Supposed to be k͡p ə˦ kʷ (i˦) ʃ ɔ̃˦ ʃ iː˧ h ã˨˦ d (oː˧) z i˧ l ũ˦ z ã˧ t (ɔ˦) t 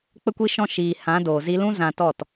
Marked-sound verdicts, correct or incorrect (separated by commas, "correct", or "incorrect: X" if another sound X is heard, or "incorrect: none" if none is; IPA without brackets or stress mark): correct, incorrect: oː˨, incorrect: ɔ˦˨